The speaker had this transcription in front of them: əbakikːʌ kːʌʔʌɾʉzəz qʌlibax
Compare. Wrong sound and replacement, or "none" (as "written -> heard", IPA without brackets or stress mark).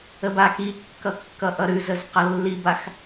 l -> lː